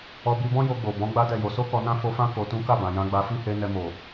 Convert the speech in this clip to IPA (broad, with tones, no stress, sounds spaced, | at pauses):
ɔ˧ b i˧ b ɔ̃˦ j o˧ ɡ͡b o˨ b ɔ̃˨˦ ɡ͡b a˦ d ɛ˦˨ j o˧ s o˦ k ɔ˧ n ã˦ f o˧ f ã˦ k o˧ t ũ˦ k a˦˨ b ã˨ j ã˧ ɡ͡b a˧ f i˦ h e˧ n ɛ˧ m o˨